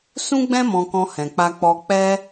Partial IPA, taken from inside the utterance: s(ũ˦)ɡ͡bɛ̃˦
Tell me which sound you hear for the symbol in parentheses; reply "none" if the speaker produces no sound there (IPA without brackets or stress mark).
ũ˦